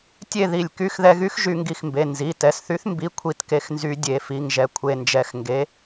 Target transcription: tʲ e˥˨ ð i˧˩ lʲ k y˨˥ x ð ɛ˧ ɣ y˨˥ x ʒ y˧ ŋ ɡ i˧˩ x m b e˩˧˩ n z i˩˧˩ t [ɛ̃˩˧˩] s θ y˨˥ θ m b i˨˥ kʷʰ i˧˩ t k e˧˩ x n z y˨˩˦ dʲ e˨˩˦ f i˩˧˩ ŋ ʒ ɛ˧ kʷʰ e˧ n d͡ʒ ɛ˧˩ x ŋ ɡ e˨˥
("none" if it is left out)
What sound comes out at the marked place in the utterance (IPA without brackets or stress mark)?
ɛ˩˧˩